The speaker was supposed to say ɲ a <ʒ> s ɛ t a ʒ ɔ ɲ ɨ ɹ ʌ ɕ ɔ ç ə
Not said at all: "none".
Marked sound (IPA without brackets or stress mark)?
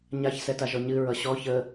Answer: ç